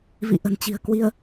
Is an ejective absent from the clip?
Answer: yes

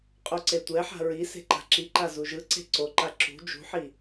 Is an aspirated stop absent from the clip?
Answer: yes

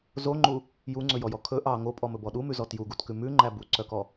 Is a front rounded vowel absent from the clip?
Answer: no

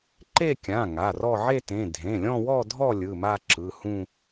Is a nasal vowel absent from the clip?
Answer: no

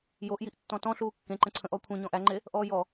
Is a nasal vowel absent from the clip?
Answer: no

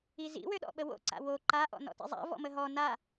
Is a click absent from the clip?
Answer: no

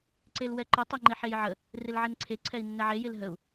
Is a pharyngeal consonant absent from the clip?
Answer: no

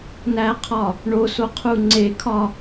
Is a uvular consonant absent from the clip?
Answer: no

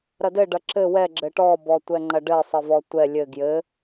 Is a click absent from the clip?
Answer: no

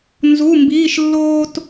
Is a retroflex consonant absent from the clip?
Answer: yes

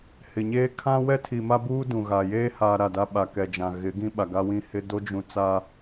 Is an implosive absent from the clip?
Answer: no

